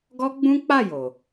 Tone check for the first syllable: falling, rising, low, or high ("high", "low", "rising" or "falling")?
high